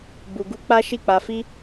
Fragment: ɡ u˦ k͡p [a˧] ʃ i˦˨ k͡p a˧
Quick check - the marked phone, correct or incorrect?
incorrect